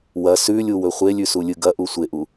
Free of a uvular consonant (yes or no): no